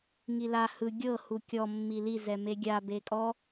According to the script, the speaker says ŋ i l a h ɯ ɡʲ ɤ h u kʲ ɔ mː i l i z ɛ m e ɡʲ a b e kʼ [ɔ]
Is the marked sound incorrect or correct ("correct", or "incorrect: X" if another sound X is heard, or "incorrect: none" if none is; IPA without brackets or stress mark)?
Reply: correct